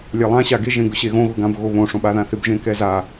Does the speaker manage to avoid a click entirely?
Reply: yes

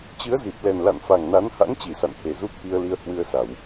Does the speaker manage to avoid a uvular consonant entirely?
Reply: yes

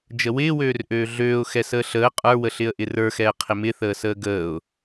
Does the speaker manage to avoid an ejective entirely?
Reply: no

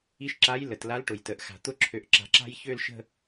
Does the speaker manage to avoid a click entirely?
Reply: no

